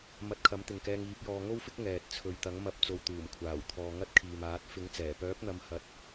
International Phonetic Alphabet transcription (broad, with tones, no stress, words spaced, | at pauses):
mɐ˧t̚kʰɐ˨˥mt̪ɪ˨ŋkɛː˧ŋ iː˨˥p̚jɔː˧ ŋo˥wfɪ˥k̚ ŋɛː˨t̚ t͡sʰɵ˨ɥt̪ɐ˨˥ŋmɐ˧p̚ t͡so˧wt̪uː˨˩mkʷʰaː˨˩wt̪ʰɔː˨ ŋɐ˥t̚kʰiː˨maː˨˥t̚ fɪ˨˥ŋt͡sɛː˨˩ pœː˨˥p̚n̪ɐ˨˧m hɐ˧t̚